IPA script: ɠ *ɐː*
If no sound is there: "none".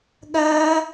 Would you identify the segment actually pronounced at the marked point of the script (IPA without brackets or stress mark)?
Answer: ɐː